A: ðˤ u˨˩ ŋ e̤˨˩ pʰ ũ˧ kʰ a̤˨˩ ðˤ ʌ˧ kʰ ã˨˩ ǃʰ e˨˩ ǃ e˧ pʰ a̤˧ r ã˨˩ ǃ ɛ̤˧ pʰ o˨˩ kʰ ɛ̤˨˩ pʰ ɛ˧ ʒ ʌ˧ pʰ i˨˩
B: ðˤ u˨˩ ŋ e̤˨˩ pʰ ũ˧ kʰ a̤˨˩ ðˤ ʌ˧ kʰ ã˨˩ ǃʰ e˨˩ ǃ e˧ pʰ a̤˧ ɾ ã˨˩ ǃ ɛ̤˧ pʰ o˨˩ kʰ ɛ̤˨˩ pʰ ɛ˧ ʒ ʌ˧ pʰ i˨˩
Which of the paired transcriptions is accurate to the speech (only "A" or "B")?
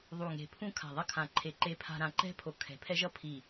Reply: B